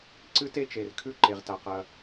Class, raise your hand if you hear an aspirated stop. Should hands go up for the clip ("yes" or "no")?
yes